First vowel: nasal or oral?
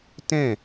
nasal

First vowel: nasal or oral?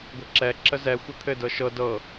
oral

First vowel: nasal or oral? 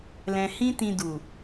nasal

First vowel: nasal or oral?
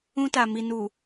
nasal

